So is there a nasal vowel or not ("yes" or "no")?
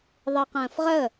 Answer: yes